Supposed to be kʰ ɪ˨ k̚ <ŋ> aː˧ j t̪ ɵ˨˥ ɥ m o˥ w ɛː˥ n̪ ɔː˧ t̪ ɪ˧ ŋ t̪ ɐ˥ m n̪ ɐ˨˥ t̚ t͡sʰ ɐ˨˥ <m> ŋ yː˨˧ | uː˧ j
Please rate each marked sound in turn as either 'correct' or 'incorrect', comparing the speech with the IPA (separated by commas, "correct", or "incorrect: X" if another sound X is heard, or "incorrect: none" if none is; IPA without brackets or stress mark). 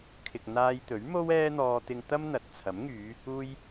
incorrect: n̪, correct